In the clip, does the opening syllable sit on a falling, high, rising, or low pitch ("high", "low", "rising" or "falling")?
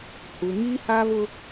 low